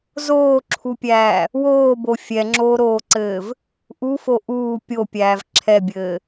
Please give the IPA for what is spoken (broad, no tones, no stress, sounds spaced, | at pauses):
z oː ǁʰ u pʲ æː | w oː b o fʲ ɛ ŋ͡ǁ oː ɾ oː ǀ ɘː v | ʔ u f o ʔ uː pʲ o pʲ æː v ǁʰ ɛ bʲ ɘː